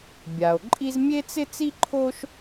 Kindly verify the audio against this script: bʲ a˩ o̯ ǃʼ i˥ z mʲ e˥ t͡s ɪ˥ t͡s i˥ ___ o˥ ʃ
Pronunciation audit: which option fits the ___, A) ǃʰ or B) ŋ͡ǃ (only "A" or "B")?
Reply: A